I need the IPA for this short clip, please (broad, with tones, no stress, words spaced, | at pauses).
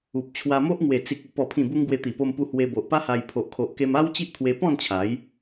u˨p̚t͡ɕʰwa˧mo˦ʔ ŋwe˨˩ t͡si˨k̚u˨˩ pɔ˨˩pʰĩ˨˩bu˧ŋ ɡwe˧t̪i˨˩po˧mpu˧ hwe˧bo˨ʔpa˦ha˧j pʰo˨ʔkʰo˨ʔke˧m a˦w t͡ɕi˦ʔt̪ʰwe˧pɔ̃˥˧nt͡ɕʰa˨˦j